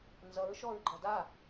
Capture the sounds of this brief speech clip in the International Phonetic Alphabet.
n z ʌ ɹ ʃ ɔ ɹ ɡ͡ǃ ʌ d a

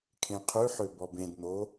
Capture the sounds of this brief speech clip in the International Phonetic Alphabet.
kʰ ẽ qʰ ʉ ħ ø b ɔ b ẽ d n̪ o

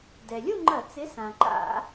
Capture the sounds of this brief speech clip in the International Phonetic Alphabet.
d ɛ˩ lʲ u˥˧ ŋ͡ǃ ɐ˧˩˧ t͡s ɪ˨˥ s ã˩ ǃ a̰˧˩˧

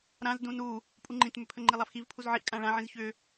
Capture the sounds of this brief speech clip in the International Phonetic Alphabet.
ɾ ã z d ũ n u | pʼ u ŋ͡ǃ ĩ t m ʏ pʰ ə ŋ͡ǃ i lˠ a f x i v pʰ u z ʕ i ʔ kʼ ã ɭ ã ʕ ĩ z ç ʏ

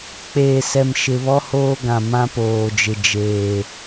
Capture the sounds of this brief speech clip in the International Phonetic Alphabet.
k͡p eː˨ s ɛ˨ m ʃ ɪ˨ β ɔ˦ h oː˦ ɡ ã˨ m ã˦ p oː˨ d͡ʒ ɪ˨ d͡ʒ eː˨

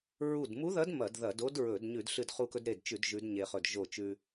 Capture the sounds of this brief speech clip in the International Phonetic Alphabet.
ɹ u˧˩ d m u˧˥ ð ɐ˧˥ d m ɐ˧˩˧ d ð ɐ˧˩˧ d o˧˥ d ɹ ɵ˧˩˧ d ɲ ʉ˧˩˧ d ɬ ɨ˧˩ d χ u˧˩ k ɵ˧ d ɾ e˧˩ d t͡ʃ ʉ˧˩˧ d ʒ ʉ˧˥ d ɲ e˧ χ ɵ˧˩ d ʒ o˧˩ t͡ʃ ʉ˧

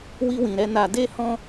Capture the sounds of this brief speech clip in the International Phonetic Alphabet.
w i˧ w ĩ˨ ɾ ɛ˧ n a˨ d e˧ h ɔ̃˧

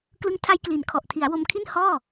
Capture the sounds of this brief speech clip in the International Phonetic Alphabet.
k l ɯ˦˥ ŋ tʰ a˦˥ j k l i˩˦ n kʰ ɔ˨˩ ʔ tʰ i˩˦ a̯ w o˧ m kʰ i˥˩ n h ɔː˥˩

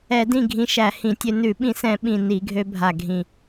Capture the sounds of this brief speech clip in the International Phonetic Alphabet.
ɛ˧˩˧ d ĩ˥˩ ɡʱ ĩ˧ ʃ æ˧˩˧ h ĩ˧˩˧ tʲ ø˧ n ʉ˧˩˧ ɓ ĩ˧˩˧ s ɛ̃˧˩˧ ɓ ĩ˧˩ n i˧˩˧ ɡʱ ø˧ bʱ a˧˩ ɡʱ ĩ˧˩

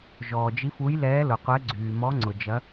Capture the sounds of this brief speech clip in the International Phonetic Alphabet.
ʒ ɔː˩ d͡ʒ i˨˦ f u˨˦ j l ɛː˨˦ l ʊ˩ qʷ ɛ˨˦ ɡ͡ǀ yː˩ m ɔ˨˦ ŋ͡ǀ ʊ˩ d͡ʒ ɐ˨˦

